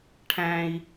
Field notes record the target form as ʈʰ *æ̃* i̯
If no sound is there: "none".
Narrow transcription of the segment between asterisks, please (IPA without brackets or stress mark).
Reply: æ̃